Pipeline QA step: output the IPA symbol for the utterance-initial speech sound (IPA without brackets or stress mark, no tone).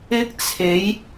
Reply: ɪ